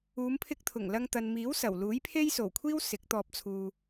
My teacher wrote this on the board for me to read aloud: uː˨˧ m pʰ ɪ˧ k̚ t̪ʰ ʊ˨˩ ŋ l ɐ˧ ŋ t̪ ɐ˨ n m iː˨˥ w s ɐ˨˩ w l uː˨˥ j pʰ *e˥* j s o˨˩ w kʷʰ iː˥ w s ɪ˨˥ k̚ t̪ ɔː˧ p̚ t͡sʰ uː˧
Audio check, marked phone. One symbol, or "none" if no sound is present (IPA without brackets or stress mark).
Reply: e˥